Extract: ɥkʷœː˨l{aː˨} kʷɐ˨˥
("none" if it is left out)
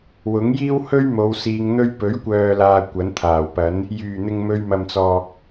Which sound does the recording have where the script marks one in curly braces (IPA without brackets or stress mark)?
aː˨